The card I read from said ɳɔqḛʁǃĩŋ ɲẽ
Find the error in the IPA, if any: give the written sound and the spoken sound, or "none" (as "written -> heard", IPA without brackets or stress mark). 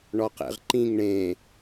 ɲ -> ɳ